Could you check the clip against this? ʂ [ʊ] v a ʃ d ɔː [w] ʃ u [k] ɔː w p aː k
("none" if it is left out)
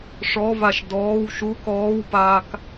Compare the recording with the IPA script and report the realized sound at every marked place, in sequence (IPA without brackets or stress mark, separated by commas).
ɔ, w, k